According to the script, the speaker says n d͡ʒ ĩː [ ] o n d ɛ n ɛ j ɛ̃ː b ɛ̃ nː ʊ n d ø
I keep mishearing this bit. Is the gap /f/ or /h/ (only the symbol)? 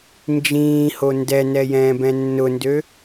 h